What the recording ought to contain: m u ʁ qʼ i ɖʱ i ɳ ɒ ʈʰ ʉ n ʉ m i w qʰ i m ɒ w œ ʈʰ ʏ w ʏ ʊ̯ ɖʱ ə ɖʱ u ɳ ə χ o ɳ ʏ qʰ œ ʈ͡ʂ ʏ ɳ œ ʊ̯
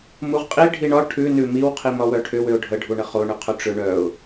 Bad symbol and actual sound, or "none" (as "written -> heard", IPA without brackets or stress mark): none